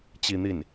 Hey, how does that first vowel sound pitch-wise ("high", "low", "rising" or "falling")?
falling